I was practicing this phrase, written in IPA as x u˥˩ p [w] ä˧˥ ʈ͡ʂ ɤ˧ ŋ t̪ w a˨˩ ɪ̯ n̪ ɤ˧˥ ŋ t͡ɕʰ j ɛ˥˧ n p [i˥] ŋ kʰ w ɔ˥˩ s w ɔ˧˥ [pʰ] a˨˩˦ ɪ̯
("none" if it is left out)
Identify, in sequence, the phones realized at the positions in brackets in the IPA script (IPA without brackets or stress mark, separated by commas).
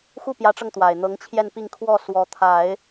j, i˥˧, t̪ʰ